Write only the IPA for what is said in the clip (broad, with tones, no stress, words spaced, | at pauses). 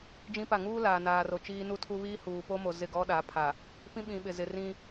d͡ʒĩ˦pa˦˨ ŋuː˦ laː˨naː˨ro˨ t͡ʃiː˦nu˦tʰu˦ βiː˦huː˨po˦mo˨ zɪ˦˨ɡɔ˦ɗa˨˦pʰa˨ | pĩ˦ɓĩ˨ɓɪ˨zɪ˨ rĩ˦